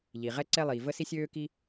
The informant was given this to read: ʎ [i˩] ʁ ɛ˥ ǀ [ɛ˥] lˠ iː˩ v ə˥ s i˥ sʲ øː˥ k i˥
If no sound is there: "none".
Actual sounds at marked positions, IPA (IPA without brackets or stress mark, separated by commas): i˩, ɛ˥